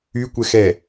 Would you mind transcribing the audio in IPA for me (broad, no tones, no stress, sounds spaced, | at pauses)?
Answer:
y kʷ ɛ x ɛ